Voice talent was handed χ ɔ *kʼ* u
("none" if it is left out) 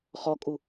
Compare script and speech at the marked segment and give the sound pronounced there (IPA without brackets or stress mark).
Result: kʼ